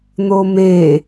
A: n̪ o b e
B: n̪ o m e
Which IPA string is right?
B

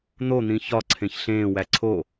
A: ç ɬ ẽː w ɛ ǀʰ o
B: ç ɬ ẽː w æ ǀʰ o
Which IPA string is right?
B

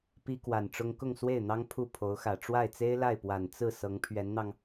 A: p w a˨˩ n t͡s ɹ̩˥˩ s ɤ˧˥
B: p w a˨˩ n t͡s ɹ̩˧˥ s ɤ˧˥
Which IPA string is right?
A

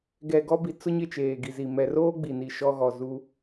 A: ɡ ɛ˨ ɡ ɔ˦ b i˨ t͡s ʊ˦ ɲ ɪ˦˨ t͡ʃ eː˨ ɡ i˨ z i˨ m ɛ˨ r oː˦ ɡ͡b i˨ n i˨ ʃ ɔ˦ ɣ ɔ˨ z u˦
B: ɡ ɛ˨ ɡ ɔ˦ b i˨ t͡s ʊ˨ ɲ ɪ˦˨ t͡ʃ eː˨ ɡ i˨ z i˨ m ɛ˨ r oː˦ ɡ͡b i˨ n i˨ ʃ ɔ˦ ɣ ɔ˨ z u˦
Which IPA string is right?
A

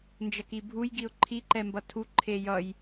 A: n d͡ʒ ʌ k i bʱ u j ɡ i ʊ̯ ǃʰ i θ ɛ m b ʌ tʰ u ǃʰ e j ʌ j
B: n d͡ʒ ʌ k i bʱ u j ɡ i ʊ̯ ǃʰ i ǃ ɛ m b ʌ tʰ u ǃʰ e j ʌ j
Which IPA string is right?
B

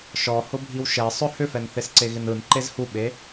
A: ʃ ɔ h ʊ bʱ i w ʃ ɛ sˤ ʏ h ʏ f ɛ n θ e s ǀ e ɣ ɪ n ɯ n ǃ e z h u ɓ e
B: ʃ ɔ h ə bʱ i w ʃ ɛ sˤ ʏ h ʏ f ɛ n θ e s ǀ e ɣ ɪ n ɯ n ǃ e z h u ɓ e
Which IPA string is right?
A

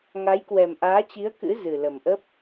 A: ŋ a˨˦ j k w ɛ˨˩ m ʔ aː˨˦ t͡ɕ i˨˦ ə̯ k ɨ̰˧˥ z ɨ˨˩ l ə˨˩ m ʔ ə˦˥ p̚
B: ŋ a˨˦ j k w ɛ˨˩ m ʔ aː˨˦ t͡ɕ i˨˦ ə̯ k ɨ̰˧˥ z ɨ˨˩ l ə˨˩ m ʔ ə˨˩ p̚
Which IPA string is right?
A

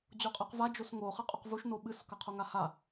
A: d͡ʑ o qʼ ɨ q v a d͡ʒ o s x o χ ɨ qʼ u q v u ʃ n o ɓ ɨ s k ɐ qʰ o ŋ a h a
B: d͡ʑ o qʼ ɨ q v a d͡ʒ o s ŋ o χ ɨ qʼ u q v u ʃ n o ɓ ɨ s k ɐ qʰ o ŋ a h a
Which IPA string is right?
B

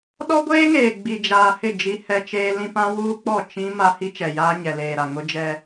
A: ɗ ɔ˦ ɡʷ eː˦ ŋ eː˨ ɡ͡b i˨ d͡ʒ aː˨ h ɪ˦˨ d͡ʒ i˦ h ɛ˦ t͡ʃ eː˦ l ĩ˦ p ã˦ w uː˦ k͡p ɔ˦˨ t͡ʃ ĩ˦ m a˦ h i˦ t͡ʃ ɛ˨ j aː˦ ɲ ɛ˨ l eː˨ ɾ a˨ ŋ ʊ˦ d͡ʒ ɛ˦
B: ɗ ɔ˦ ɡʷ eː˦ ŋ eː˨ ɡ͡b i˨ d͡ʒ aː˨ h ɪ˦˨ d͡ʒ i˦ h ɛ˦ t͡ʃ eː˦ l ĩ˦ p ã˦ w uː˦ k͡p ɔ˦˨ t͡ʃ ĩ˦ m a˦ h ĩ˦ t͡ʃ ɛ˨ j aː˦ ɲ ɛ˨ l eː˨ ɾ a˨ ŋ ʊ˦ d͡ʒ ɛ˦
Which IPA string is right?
A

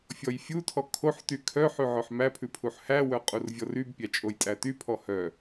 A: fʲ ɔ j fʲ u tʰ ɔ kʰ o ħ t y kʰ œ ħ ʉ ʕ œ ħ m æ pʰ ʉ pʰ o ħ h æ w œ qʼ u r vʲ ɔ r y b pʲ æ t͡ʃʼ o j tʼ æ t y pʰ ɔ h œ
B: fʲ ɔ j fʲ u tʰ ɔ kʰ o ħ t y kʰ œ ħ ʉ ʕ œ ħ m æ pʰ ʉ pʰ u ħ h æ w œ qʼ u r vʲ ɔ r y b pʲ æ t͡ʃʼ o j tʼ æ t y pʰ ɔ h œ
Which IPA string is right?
B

